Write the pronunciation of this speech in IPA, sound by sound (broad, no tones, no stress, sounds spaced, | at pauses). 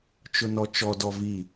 t͡ʃ ʊ n ɔ t͡ʃ ɔ d ɔ v i